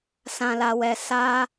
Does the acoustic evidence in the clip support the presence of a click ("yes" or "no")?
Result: no